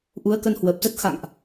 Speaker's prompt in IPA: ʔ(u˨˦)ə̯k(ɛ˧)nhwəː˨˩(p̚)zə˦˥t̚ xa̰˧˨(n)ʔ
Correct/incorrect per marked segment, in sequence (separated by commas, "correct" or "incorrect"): correct, incorrect, correct, incorrect